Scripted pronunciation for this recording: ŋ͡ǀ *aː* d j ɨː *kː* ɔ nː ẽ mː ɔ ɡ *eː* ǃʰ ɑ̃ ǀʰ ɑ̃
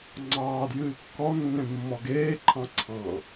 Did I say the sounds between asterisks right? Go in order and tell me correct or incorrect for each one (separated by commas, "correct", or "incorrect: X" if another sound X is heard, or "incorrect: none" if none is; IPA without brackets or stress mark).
incorrect: ɑː, correct, correct